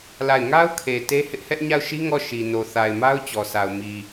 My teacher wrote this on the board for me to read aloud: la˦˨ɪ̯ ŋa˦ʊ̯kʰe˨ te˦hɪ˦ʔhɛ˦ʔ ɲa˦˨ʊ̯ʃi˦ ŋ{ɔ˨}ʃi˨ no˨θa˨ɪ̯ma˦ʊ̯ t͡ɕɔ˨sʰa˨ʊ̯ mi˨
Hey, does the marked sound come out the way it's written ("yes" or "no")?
no